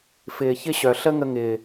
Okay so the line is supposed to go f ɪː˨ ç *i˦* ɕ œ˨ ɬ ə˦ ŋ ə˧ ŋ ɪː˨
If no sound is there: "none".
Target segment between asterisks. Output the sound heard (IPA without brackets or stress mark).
ɪ˦